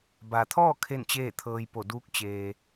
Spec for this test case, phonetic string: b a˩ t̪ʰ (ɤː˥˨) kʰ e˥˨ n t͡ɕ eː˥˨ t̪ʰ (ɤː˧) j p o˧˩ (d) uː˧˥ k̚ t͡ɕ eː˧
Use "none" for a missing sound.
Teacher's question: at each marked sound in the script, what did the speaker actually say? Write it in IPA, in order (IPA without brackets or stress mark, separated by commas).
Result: ɔː˥˨, ɤː˧, d